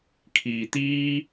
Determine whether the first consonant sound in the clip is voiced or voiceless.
voiceless